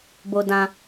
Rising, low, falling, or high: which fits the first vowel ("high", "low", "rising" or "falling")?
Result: low